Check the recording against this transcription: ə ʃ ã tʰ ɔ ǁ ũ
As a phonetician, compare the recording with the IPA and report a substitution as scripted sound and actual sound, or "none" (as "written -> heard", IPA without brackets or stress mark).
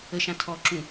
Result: none